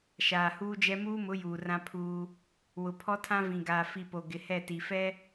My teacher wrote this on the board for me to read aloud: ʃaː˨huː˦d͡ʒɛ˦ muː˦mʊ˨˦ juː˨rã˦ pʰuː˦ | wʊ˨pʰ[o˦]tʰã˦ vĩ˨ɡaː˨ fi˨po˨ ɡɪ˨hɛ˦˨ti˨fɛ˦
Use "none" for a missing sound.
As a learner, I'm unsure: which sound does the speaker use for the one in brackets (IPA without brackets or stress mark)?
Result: ɔ˦